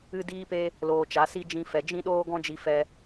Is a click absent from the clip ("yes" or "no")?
yes